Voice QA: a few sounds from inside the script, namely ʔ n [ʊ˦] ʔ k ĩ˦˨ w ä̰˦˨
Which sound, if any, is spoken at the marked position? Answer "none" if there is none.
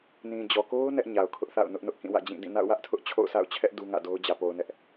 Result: ʊ˦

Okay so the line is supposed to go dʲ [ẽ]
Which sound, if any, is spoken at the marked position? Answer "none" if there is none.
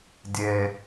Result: e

